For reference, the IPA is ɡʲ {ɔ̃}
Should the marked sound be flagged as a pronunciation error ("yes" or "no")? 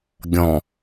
no